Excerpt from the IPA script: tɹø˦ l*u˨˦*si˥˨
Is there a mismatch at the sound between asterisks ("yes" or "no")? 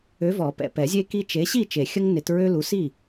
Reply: no